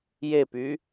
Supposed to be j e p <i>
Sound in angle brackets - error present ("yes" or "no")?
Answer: yes